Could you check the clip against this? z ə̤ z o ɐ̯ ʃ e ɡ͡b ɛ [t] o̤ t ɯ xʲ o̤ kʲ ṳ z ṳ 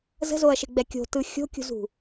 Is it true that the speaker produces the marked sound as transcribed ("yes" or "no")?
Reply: no